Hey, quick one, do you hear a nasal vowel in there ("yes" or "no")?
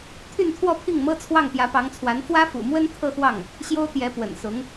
no